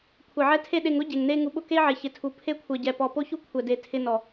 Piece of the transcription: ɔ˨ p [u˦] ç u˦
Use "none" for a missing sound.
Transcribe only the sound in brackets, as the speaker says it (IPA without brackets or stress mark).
o˦